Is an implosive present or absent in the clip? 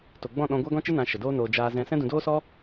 present